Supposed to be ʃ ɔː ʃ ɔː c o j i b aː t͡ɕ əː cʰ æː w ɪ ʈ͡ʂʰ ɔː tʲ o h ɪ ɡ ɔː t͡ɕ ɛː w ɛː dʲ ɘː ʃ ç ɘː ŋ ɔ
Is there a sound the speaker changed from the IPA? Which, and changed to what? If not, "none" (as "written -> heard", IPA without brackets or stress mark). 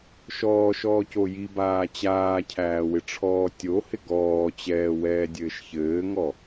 əː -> aː